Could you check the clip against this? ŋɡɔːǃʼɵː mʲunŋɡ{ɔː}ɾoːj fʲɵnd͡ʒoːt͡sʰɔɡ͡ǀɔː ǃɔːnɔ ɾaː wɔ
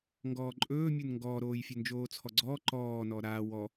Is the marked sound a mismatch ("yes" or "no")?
no